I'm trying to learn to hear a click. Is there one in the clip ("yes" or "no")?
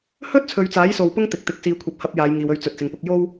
no